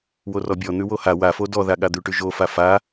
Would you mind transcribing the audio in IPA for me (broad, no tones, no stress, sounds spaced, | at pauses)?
w o r ɔ bʲ ɔ n̪ ʉ w o h a w a f o d ɔ ð a ɠ a d̪ ʉ ʈ ʉ ʒ o f a f a